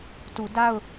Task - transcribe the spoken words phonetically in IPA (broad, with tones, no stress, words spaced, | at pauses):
tu˨ da˦˨ʊ̯